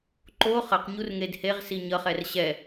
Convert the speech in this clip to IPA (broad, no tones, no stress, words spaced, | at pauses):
ǃo χʌqɲur ŋedheʁsi ɲʌχɛr ɕɛ